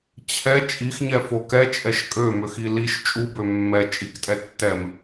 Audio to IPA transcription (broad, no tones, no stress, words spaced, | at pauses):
t͡ɕʰɛ t͡ʃʼixɲɛfo kɛt͡ʃʼɛʃ kʼømøxi liʃ t͡ʃʼubø mːɛ t͡ʃʼiktʼɛ tːɛm